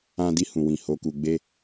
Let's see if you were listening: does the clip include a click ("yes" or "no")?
no